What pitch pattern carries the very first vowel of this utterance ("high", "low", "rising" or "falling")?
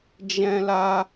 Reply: high